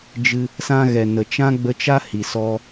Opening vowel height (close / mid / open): close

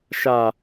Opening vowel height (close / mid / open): open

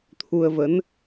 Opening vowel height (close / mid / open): close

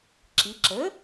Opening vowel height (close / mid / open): close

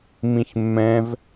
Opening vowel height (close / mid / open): close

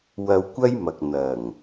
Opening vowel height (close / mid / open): open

